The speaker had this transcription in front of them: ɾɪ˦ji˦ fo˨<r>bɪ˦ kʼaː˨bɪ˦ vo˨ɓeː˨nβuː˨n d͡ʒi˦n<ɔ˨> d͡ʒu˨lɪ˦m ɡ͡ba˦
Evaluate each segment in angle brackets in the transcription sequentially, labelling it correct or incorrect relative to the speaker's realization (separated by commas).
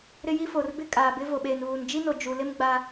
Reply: correct, incorrect